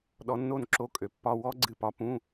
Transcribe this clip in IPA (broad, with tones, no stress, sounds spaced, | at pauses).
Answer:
ɗ ɔ˨˥ nː o˥˩ n ǁ o˧˥˧ kʼ ø˩˧ pː ɒ˧˥˧ w ɔ˦˥ ɡ͡ǀ ɨ˧˩ p ɒ˨˥ p ũ˧˥˧